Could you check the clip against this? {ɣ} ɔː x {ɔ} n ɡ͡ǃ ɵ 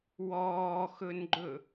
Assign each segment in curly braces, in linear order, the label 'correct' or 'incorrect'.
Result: incorrect, incorrect

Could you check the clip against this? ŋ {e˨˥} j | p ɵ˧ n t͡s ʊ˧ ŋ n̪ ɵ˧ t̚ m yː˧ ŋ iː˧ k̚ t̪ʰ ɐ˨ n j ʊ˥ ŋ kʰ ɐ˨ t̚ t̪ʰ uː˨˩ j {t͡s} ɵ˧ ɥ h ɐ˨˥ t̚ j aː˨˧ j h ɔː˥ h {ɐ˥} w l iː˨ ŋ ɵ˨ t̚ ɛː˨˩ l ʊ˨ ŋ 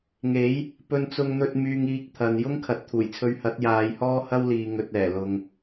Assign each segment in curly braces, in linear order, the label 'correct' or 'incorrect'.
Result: correct, incorrect, correct

